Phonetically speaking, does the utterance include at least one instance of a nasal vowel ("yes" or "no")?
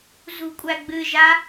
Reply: no